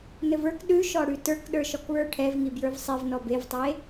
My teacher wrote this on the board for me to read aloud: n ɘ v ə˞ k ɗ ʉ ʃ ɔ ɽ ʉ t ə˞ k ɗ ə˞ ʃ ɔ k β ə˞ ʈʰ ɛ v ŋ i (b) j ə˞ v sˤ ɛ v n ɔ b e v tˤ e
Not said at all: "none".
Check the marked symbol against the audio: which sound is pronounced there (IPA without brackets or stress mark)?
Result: b